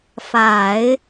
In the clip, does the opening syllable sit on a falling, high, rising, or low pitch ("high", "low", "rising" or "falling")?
low